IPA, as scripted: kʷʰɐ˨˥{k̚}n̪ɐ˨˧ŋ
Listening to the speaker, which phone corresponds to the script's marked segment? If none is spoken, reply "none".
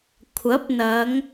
p̚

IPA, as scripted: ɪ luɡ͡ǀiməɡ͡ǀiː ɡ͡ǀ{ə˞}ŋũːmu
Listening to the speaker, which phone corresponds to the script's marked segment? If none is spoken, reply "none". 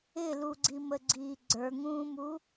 ə˞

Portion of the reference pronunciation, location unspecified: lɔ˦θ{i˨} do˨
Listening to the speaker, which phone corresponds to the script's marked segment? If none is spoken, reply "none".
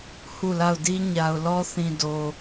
ĩ˨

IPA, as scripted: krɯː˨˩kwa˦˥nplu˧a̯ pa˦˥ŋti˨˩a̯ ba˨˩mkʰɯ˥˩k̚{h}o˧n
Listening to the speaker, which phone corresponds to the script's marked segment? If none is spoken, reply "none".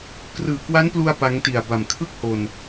h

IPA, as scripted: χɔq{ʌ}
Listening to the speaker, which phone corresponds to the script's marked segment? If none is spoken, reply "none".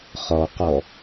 ɔ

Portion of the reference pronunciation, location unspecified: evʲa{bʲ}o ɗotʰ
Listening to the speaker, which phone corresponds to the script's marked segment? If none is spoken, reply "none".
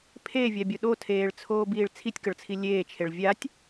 bʲ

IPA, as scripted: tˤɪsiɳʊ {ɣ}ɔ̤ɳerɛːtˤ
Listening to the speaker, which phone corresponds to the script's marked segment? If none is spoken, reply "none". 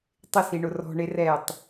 r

